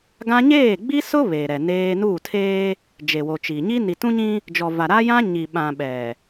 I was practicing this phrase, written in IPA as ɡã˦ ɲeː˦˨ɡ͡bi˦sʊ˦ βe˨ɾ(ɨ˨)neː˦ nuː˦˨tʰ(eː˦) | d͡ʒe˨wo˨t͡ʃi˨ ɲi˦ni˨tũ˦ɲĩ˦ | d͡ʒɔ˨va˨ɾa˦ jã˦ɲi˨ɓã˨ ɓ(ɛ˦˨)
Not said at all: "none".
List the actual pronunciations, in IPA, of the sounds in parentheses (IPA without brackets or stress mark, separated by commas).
ɛ˨, eː˦, ɛ˨